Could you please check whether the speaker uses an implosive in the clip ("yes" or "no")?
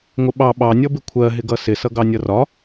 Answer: yes